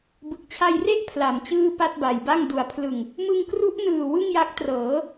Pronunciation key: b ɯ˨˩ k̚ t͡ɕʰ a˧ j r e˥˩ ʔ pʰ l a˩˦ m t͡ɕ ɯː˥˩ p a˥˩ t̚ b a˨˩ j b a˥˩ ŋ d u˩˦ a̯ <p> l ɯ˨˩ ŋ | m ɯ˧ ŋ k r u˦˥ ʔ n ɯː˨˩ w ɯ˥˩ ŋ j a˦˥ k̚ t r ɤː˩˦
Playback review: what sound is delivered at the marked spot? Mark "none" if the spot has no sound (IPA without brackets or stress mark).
pʰ